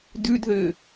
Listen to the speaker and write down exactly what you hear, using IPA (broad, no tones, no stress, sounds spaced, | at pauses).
d ʉ d ð ʏː